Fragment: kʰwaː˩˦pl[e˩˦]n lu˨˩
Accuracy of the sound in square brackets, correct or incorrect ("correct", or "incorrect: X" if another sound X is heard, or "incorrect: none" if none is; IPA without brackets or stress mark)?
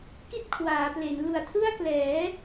correct